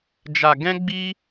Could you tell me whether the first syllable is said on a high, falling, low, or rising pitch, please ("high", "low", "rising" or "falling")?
low